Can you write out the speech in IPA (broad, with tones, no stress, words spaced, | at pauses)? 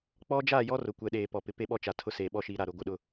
k͡pɔ˦ d͡ʒaː˦˨jɔ˦ rʊ˨kʷɛ˨ɗeː˨ pɔ˨pɪ˨pe˦ɓɔ˦ t͡ʃa˨tʰʊ˦seː˨ ɓɔ˦ʃi˨˦ɾa˨ɾʊ˨ ɡʷɪ˦˨ɗʊ˦